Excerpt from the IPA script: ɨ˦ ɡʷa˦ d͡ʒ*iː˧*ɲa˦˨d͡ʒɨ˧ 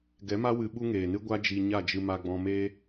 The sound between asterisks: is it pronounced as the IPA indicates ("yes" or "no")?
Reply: no